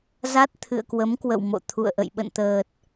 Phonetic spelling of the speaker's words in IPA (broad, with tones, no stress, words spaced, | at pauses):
za˦˥t̚t̪ʰɨ̰˧˨ə̯kwə˨˦m kwə̰˧˨wmo̰˧˨t̪ʰṵ˧˨ə̯ʔə̰˧˨j ɓə̰˧˨nt̪əː˨˩t̚